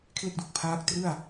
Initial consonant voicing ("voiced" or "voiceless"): voiceless